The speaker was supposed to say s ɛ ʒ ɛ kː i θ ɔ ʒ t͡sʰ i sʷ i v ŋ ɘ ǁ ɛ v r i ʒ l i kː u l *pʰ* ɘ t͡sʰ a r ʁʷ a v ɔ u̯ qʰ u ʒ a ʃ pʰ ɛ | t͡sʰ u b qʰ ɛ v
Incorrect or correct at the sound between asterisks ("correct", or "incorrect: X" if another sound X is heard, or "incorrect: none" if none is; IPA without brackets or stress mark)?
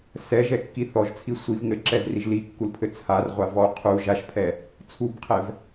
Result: correct